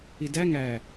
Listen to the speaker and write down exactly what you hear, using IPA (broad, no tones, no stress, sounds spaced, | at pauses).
i d æ ŋ æ